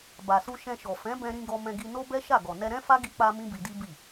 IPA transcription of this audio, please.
b a˨ s u˧ ʃ ɛ̃˧ ʃ ɔ˨ f ɛ̃˨˦ b ɛ̃˧ ɾ ĩ˧ ɡ ɔ˧ m ɛ̃˧ ɡ i˧ n o˦ b ɛ˦ ʃ a˦˨ ɡ ɔ˨ n ɛ˧ ɾ ɛ̃˦ f a˦ ɡ i˧ k͡p a˧ m ĩ˦ b i˧ d i˦ b i˦˨

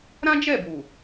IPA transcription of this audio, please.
ɾ ã˦ d͡ʒ ɛ˦˨ b uː˨

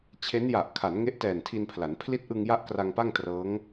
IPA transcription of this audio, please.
t͡ɕʰ e˦˥ n j a˨˩ ʔ kʰ a˩˦ n ŋ e˦˥ ʔ t ɛː˨˩ n tʰ i˧ n pʰ l a˩˦ n pʰ l i˦˥ t̚ ʔ ɯ˧ ŋ j a˦˥ ʔ k r a˧ ŋ p a˥˩ ŋ t r ɤː˦˥ ŋ

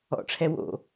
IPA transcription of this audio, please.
ɔ̰ ʈ͡ʂʰ ɛ w o̰

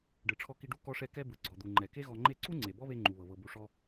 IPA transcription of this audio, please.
ɖ ɯ˩ ʈ͡ʂʰ ɔ˧ k i˧ ɖ u˥ k ɔ˧ ʂ ɛ˧ k ɛ˧ b ɯ˩ ɡ͡ǀ ɔ˩ d̪ u˩ ŋ͡ǃ ɛ˩ k e˥ ɣ ɔ˧ ŋ͡ǃ e˥ ǀ u˥ ŋ͡ǀ e˩ b ɔ˥ β e˧ ŋ͡ǃ u˩ β ɤ˩ β ɤ˩ b u˩ ʂ ɔ˧

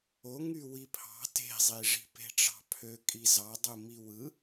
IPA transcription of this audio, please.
o ŋ y w i pʰ ɑ̤ t e̤ zˤ i ʐ i̤ p e̤ ʈ͡ʂ ɑ̤ pʰ ø kʼ i z ɑ dˤ u m i w ɯ

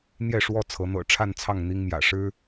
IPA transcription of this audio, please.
n̪ j ɛ˥˨ ʂ w ɔ˥˨ t͡sʰ ɤ˨˦ n̪ ɤ̰˨˩ ʈ͡ʂʰ a˥˨ n t͡sʰ ɑ˥˨ ŋ n̪ i˦ ŋ m j ä̰˨˩ ʂ ɻ̩˦

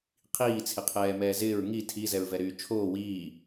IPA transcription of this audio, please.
qʰ iː t͡sʰ ɪ qʰ ɛː m ɛː z ɪː ɹ ŋ i tʰ i z ɛ ɹ v ɛ ɾ yː t͡ʃʰ oː w iː

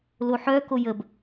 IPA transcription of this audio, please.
l o ħ œ k o j ə b

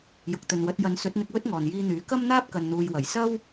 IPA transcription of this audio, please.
j ʊ˨ k̚ t̪ ɵ˨ n w ɐ˨˥ t̚ j ɐ˨˧ n s ɵ˨˥ t̚ n̪ ɪ˧ k̚ w ɵ˥ t̚ ŋ ɔː˨ n j iː˧ n̪ yː˨˥ k ɐ˥ m n̪ aː˥ p̚ k ɐ˨ n n̪ uː˨ j w ɐ˨˩ j s ɐ˥ w

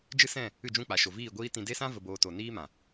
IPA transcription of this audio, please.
d͡ʒ ɨ˦ s ɛ̃˦˨ | ɨ˦˨ d͡ʒ ũ˦˨ k͡p a˨ ʃ o˨ v iː˦˨ ɡʷ iː˦ t ĩ˧ d e˦ s ã˦ v ə˧ b oː˧ t o˨ n iː˦ m ã˨

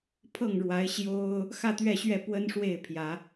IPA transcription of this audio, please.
pʰ ɤ˥˨ ŋ ɻ w a˨˦ ɪ̯ ɕ j o˦ ʊ̯ | x ä˥˨ t̪ ɥ ɛ˥˨ ɕ ɥ ɛ˥˨ p w ə˦ n ʂ w e˥˨ ɪ̯ pʰ j ä˨˦

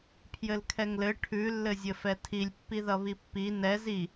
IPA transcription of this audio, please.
pʰ j ɘ l kʰ ɛ ŋ l ɘ ʈʰ ʉ lː ɘ zʲ ɘ f ɛ tʰ i lʲ pː i ð ʌ β i pː i n ɛ z i

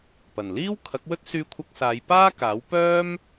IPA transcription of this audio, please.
p ɐ˨˩ n l iː˥ w kʰ ɐ˨˥ k̚ w ɵ˥ t̚ s yː˧ kʷʰ ɐ˧ k̚ s aː˨˧ j p aː˥ k aː˨˥ w p œː˥ m

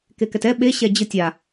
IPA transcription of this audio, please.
k e k ɛ t ɛ ɓ e ɕ ɛ d͡ʑ ɯ tʲ a

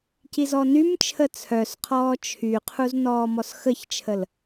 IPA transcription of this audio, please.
c i z ɔ n y m t͡ʃʰ ə t͡sʰ œ s qʰ ɔː t͡ʃʰ y qʰ u z n ɔː m ɔ s x ə ç t͡ʃʰ ə l

